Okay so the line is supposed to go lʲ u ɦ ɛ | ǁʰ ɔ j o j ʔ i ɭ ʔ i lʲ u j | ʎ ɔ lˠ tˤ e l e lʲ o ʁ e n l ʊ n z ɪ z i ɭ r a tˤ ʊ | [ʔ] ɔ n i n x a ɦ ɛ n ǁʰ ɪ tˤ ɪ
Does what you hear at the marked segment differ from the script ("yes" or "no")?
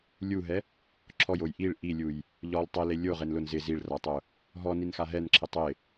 yes